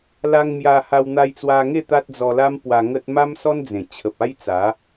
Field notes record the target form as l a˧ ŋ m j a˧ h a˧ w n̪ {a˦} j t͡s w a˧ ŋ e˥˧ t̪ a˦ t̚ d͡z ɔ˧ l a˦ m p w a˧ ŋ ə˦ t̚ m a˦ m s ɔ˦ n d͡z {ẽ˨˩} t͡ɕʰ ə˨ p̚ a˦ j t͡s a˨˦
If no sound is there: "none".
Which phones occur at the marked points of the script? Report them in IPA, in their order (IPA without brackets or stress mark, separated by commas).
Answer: a˧, ẽ˨˩